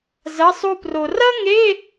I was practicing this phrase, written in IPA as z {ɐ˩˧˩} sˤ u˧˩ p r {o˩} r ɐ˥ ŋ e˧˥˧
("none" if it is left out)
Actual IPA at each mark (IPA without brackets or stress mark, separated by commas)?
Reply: ɐ˩˧˩, o˩